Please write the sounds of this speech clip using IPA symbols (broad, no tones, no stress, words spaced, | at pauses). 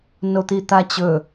not̪it̪at͡ɕɵ